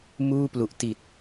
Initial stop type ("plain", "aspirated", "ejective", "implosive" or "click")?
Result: plain